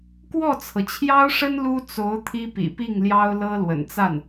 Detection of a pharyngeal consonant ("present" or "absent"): absent